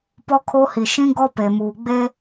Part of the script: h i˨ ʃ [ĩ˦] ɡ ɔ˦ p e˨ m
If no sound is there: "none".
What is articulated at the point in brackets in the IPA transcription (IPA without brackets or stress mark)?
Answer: ĩ˦